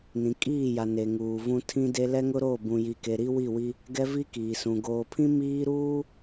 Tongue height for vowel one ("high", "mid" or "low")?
high